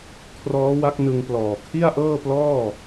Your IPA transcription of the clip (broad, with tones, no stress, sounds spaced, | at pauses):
kʰ r ɔː˦˥ w a˦˥ k̚ n ɯ˧ ŋ p l ɔː˨˩ kʰ i˥˩ a̯ ʔ ɤː˥˩ p l ɔː˥˩